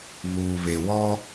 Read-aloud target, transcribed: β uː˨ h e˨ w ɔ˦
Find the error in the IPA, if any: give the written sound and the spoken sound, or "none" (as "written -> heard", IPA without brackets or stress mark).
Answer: h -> β